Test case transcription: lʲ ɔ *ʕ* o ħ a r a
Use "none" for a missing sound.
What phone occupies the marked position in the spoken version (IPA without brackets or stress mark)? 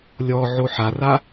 ʕ